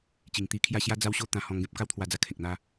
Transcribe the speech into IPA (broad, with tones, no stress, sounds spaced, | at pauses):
t͡ɕ i˨˩ ŋ t̪ i˧ kʰ j a˥˧ ɕ j a˦ d͡z a˦ w ɕ o˦ t̪ ã˧ h ɔ̃˧ ŋ ɡ ẽ˦ p̚ k a˦ w t̪ʰ w a˧ d͡z a˧ kʰ ẽ˨ k̚ n̪ a˦